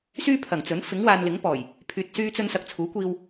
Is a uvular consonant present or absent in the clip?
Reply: absent